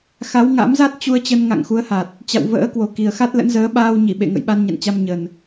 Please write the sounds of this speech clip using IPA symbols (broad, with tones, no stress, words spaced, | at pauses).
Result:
xa˨˦wŋa̰˧˥m za˦˥t̚t͡ɕu˧ə̯t͡ɕə˧n ŋa̰˧˨ŋxu˨˦ə̯ha˨˩t̚ | t͡ɕa̰˧˨wvə̰ː˧˥kwo˨˩ ki˨˩ə̯xa˦˥t̚lə̰˧˥nzəː˨˦ ɓaː˧wɲi˧˩ɓḛ˧˨ ŋə̰˧˨jɓa˧nɲa̰˧˨nt͡ɕa˧m ɲə˨˩n